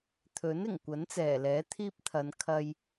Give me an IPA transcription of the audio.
t̪ʰ ɵ˨˥ n ɪ˨˩ ŋ kʷ ɐ˨˥ n t͡s ɛː˨˩ l ɛː˨˥ t̪ʰ iː˥ p̚ t̪ʰ ɐ˨˧ n kʰ ɐ˧ j

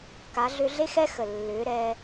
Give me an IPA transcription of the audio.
k a˨˦ ɮ ʏ˧ ɮ e˦ x ɛ˦ x ə˨ lː ʏː˨˦ ɾ ɛː˧

